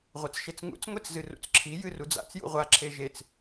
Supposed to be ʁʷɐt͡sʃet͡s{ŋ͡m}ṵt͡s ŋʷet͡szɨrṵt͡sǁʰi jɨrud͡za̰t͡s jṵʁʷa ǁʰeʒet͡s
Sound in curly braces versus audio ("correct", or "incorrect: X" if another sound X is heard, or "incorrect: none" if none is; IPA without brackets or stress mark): incorrect: ŋ